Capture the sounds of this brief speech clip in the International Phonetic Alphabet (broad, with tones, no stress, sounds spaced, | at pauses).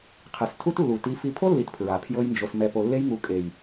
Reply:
qʰ ɛ˨ s tʰ u˦ t lː u˨ t i˨˦ f i˧ pʰ o˦ lː i˨ t pʰ ɹ a˨ pʰ j ɤ˦ j n d͡ʒ o˧ s m ɛ˧ p o˧ lː e˦ j ŋ u˧ kʼ e˨ j